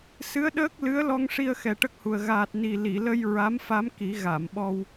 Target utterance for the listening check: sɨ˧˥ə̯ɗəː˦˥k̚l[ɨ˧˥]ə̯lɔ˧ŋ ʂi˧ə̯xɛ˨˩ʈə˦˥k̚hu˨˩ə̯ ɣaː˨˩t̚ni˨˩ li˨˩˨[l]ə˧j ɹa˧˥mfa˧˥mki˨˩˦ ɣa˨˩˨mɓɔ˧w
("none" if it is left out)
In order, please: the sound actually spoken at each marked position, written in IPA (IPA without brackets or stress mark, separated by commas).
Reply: ɨ˧˥, l